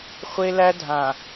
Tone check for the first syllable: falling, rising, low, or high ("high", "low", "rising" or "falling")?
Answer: high